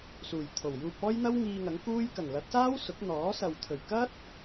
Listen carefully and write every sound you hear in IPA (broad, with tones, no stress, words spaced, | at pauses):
suː˨˩jt̪ʰo˨˩wjuː˧p̚ ɔː˥jn̪ɐ˥w ŋiː˧ŋɐ˨˥ŋkuː˥j kɐ˨˩ŋlɐ˨˥t̚saː˥w sʊ˨˥k̚n̪ɔː˨˥sɐ˨w t̪ʰɵ˨˩ɥkɐ˥t̚